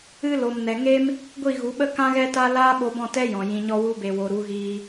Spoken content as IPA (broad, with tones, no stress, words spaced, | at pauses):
ɨ˧lo˨m nɛ˨ŋe˦m | ɡʷi˦˨ɣu˨˦ɓə˦ kã˦ɣɛ˦ta˦ laː˦ɓo˧bɔ̃˦˨ tɛ˦jɔ̃˨ jĩ˨ɲɔ˧wu˧be˨ wo˨ ɾu˨˦ɣiː˧